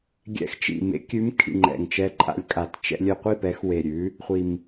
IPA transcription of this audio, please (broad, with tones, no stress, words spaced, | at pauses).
ɡʲɛ̰˨˥xt͡ʃḭ˨˩ mḛ˨˥kʲʉ˨˥mkʰḭ˨˩ ŋ͡ǃɛ̰˨˩ŋt͡ʃɛ˧ǃʼa̰˨˥lʲkʼa˨˩t t͡ʃɛ̰˧lʲø˧ qʷi˥˨ pɛ˨˥xwe˨˩ ɾʲʉ˨˥ | χʷi˨˩m